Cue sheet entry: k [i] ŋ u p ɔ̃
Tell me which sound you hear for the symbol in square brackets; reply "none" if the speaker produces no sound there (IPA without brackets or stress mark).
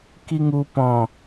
i